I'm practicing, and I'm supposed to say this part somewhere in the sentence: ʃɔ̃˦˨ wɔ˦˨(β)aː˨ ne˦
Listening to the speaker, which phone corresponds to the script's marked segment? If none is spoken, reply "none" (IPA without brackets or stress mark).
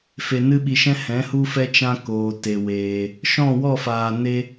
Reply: f